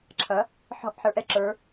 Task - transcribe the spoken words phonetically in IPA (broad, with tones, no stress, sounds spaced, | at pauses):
ǁʰ ʌ˩˧ | ħ ɔ̤˧˩ ʔ ħ ə˞˩˧ ʔ ɛ˧˩ ǁ ə˞˩˧